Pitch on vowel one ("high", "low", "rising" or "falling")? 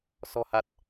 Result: low